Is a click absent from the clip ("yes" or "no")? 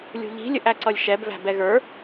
no